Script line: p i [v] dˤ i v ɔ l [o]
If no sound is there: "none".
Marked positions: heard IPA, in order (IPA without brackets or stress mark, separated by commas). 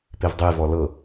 v, ɤ